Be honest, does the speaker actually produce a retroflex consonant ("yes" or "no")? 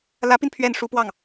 yes